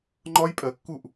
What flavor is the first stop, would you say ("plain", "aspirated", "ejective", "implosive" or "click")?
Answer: click